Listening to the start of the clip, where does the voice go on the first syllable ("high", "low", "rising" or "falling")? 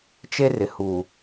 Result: high